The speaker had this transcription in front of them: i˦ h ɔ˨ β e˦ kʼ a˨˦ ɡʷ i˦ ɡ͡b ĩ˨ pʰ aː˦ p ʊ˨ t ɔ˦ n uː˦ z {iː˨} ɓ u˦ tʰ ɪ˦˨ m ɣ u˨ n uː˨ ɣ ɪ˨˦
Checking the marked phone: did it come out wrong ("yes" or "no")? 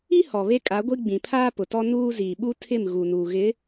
no